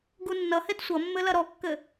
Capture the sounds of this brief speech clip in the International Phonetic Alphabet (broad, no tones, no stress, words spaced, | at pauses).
ɡunːʌhed sʷʌmːɘ lɐɾɔkːɘ